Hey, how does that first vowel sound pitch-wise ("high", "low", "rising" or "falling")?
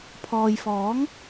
low